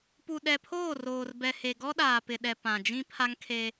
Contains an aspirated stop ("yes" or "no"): yes